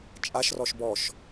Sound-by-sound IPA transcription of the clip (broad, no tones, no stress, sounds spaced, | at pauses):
t͡ʃʼ a ʃ r ɔ ʃ b ɔ ʃ